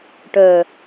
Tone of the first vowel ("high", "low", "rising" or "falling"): low